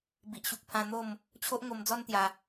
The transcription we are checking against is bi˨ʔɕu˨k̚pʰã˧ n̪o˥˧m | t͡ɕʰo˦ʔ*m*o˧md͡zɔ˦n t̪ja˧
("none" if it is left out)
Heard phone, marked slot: ŋ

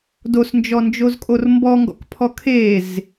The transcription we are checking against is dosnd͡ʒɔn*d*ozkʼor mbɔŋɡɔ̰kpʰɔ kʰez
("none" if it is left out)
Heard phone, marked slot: d͡ʒ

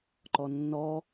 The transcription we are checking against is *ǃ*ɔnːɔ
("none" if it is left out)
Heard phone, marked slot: ǃ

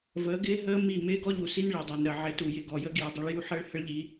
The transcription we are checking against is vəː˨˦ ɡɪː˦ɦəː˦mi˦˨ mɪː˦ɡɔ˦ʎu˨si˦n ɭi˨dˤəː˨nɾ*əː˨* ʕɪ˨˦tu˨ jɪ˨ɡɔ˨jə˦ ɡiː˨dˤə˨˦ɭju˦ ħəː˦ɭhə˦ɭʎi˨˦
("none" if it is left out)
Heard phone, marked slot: əː˨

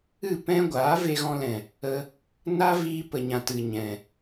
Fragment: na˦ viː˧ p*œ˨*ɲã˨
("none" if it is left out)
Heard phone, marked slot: ə˨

